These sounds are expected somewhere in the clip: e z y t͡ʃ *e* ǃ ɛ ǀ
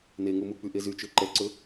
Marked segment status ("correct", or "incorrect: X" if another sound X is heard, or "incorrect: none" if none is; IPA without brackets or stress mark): incorrect: ø